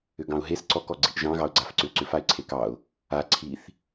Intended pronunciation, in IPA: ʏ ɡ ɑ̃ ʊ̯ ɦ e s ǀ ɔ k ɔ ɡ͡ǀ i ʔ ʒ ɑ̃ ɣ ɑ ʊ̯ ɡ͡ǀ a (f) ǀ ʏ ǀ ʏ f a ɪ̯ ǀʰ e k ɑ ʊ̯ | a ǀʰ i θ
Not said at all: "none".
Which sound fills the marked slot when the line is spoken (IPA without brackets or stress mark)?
f